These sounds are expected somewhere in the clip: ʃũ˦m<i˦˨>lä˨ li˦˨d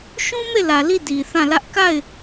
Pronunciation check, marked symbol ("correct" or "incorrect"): incorrect